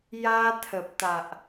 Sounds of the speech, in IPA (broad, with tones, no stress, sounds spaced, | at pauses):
j a˧ t̪ʰ ə˨ p̚ t̪ a˨ ʔ